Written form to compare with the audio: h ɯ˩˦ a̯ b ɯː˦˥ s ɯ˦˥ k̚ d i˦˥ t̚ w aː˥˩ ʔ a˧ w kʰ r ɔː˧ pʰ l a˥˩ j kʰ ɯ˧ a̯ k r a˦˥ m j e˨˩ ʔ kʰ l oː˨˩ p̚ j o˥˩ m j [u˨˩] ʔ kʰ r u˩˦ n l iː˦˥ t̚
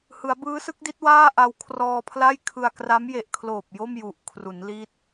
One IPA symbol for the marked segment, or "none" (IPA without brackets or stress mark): u˨˩